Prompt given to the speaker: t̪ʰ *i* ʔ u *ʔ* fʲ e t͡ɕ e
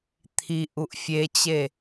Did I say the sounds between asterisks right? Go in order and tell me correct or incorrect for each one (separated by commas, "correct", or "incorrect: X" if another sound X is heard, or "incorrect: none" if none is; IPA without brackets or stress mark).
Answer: correct, correct